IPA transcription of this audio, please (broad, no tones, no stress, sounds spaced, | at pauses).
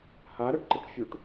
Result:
h a ɾ ɜ ʈ ǃ ə ʈ fʲ u ʈ